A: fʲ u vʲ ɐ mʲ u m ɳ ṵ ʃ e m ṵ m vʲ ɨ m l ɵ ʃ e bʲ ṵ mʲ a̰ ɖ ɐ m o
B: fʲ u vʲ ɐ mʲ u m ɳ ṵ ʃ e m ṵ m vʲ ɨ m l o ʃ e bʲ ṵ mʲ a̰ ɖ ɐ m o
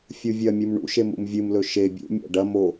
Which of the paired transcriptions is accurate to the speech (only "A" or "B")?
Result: A